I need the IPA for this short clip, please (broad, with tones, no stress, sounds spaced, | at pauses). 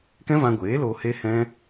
k ɛ̃˦ v ã˧ ɡʷ eː˨˦ l oː˧ h e˦ h ɛ̃˦